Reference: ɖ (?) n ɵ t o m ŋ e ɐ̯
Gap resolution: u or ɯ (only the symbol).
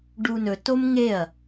u